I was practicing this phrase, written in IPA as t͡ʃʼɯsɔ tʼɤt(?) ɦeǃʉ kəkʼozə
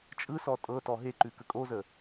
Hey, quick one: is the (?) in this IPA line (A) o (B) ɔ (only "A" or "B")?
B